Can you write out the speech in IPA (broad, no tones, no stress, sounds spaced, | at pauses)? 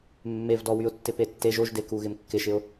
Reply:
mː e v d ɔ w y ʊ̯ tː ɪ p e tː e ʒ o ʒ d e k u ɣ ɪ m kː ɪ ʃ ɪ ʊ̯